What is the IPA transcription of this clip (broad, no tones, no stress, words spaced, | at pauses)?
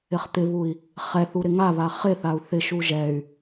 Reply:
ɪχt̪ɪβui̯ | χɛθu ɾɪŋaβa χɪθau̯ θɪʃu ʒɛy̯